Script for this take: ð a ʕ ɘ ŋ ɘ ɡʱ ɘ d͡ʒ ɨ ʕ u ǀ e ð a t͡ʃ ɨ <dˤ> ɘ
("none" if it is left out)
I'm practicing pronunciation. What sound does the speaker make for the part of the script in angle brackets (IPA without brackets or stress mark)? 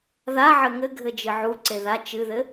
ð